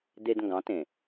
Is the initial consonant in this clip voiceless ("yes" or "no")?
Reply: no